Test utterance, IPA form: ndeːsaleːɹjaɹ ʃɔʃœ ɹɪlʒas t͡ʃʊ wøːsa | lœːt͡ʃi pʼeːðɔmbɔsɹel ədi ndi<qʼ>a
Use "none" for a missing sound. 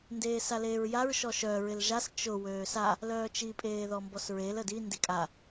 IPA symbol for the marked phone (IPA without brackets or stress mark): kʼ